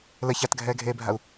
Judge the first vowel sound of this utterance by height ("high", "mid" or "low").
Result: mid